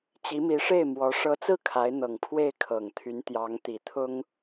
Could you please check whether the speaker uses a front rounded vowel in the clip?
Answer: yes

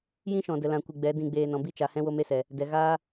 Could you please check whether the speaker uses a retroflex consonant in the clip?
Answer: no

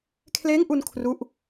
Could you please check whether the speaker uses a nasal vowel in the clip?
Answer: no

